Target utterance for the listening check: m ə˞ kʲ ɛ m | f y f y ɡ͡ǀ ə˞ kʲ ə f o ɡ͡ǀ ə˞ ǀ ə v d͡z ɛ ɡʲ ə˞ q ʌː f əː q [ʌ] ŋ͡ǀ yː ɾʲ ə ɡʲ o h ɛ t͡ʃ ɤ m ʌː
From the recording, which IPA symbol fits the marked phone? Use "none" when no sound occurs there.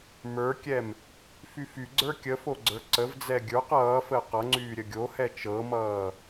ʌ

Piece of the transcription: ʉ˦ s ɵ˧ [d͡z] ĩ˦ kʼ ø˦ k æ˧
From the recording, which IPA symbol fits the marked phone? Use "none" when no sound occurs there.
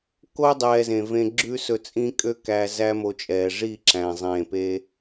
t͡sʼ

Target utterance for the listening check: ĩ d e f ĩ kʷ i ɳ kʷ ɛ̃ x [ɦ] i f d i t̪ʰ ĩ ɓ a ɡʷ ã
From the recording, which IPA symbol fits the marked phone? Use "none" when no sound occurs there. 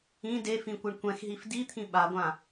ɦ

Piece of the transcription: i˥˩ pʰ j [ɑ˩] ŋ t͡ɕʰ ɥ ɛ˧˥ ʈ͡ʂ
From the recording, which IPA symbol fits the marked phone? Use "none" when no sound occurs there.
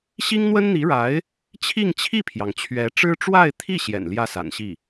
ɑ˩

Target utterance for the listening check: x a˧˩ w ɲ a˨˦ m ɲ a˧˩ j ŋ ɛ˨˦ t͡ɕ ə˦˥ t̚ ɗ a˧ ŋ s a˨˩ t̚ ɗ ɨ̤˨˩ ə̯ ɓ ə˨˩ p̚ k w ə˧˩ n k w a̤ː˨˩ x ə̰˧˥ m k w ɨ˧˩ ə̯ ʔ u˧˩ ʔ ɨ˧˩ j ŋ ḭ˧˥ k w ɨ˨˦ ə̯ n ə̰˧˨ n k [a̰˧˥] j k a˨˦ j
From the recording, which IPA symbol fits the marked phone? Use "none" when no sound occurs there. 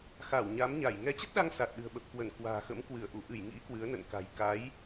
a̤˨˩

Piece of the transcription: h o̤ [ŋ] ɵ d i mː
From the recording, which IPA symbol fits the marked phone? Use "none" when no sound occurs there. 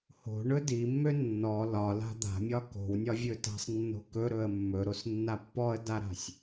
ɳ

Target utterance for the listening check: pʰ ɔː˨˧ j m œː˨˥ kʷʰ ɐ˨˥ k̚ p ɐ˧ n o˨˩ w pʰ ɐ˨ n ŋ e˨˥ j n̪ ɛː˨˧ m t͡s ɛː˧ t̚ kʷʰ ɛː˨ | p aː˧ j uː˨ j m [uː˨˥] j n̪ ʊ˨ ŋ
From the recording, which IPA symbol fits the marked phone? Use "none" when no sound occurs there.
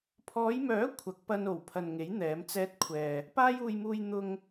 uː˨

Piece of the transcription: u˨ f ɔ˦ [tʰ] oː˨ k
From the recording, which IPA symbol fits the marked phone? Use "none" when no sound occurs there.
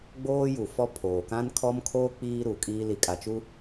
pʰ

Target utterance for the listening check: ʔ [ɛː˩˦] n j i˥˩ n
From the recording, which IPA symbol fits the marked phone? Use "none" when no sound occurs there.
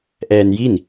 ɛː˧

